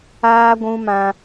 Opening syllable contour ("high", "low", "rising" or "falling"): high